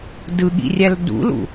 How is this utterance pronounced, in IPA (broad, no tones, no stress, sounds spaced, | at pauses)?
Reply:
d ɯ ɠ ḭ rʲ æ l d ṵ l ṵ